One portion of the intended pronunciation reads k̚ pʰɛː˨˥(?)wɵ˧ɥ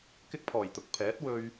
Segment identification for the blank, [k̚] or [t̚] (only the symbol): t̚